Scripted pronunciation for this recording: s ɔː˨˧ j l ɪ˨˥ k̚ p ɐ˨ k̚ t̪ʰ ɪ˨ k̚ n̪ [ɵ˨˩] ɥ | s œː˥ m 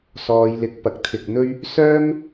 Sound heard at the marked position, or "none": ɵ˥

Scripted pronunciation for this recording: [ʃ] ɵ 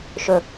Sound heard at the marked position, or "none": ʃ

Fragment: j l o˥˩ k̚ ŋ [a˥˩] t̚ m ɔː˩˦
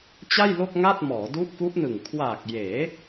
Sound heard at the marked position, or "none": a˥˩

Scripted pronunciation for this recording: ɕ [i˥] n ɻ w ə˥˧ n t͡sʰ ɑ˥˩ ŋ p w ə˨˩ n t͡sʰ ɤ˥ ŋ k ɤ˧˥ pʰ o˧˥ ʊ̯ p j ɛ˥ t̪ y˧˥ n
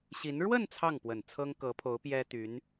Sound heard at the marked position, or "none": i˧˥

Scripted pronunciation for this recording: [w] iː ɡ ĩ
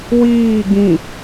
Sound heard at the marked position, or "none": w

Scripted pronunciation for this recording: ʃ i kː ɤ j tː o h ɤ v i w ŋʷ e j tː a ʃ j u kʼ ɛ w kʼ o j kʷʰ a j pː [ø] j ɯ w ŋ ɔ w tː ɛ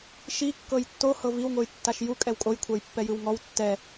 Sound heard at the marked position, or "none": ɛ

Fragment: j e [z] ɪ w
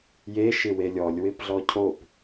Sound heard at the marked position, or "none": ʃ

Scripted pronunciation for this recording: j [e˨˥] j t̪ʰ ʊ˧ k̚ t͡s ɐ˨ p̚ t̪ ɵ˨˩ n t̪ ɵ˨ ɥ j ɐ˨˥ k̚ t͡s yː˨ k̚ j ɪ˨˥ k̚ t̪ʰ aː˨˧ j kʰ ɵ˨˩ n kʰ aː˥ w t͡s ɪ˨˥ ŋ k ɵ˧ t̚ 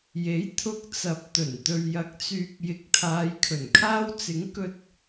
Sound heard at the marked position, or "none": e˨˥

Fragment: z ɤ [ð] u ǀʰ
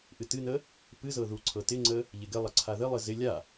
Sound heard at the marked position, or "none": ð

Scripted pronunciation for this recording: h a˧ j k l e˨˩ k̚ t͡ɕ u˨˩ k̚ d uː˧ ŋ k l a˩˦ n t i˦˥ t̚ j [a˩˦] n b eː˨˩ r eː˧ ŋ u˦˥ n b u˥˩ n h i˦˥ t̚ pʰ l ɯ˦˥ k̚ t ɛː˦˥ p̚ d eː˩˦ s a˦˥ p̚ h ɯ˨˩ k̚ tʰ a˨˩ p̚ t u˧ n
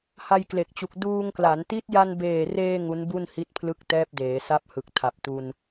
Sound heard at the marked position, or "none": a˧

